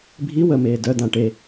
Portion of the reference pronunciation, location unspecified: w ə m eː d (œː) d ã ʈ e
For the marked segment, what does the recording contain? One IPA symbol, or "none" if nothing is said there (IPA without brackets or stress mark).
œ